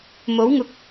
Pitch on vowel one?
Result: rising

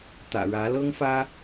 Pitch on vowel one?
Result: low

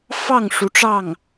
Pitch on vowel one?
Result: falling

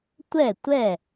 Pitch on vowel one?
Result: falling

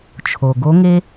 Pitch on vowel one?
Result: low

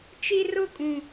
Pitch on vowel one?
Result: high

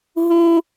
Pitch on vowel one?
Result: high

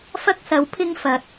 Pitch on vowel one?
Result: high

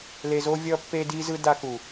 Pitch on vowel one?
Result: low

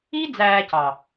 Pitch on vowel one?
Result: high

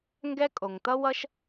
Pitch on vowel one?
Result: high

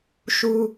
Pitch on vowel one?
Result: high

